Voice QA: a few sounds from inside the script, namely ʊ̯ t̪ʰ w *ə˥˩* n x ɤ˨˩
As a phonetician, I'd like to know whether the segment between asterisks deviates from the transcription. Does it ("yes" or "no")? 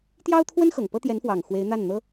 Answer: yes